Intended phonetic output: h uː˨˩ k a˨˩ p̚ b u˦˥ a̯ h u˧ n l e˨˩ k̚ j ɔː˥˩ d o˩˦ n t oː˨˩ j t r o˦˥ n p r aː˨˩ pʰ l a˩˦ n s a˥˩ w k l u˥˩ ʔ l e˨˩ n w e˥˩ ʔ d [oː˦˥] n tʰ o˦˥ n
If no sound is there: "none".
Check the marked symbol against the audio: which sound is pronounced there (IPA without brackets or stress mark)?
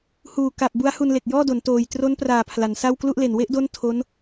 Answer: o˦˥